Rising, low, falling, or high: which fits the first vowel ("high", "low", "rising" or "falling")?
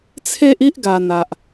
high